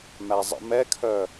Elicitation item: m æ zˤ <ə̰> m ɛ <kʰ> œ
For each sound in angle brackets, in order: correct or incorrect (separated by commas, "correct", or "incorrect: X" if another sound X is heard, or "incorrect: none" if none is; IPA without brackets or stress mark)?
correct, correct